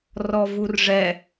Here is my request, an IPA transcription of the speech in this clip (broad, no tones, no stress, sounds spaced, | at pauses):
r ɔ v u r ʐ ɛ